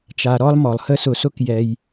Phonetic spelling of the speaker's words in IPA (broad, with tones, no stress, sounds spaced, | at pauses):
t͡ʃ a˨ ɾ ɔ˥ lˠ m ɔ˩ lˠ h ə˥ s ʊ˨ s ʊ˦ k j ɛ˨ j